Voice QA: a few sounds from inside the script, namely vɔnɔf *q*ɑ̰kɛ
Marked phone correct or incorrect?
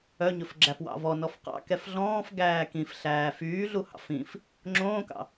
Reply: correct